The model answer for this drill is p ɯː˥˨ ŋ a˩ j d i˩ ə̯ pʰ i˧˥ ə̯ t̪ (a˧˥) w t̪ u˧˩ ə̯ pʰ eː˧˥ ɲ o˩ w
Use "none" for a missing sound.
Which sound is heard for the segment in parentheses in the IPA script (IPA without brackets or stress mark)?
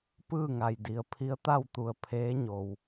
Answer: a˥˨